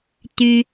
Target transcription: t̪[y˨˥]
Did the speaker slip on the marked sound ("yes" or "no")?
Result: yes